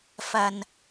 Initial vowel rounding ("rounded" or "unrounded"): unrounded